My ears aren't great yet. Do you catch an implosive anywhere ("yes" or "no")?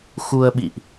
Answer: yes